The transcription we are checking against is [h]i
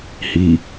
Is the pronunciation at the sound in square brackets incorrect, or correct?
correct